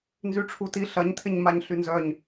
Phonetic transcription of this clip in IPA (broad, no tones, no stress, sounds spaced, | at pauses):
n z y ʈ͡ʂʰ u t i ɬ ɐ ɲ tʰ ɪ ɲ m a ɲ ɬ y n z œ ɲ